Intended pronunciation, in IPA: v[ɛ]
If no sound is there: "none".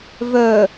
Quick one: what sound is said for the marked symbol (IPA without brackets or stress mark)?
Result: œ